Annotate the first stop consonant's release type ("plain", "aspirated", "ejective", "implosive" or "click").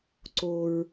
click